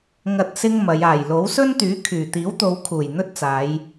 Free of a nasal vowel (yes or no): yes